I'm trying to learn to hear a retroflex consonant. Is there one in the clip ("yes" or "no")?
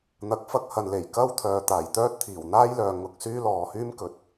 no